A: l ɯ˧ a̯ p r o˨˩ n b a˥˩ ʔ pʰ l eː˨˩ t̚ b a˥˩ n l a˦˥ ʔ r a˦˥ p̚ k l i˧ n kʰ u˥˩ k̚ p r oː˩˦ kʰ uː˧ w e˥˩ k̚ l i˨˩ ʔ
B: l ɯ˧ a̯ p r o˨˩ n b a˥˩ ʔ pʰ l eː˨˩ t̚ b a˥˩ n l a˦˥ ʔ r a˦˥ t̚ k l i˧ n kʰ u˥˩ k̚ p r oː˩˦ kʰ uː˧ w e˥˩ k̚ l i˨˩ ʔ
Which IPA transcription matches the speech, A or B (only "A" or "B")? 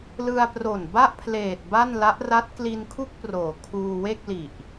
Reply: B